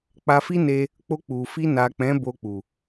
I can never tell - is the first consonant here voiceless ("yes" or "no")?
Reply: yes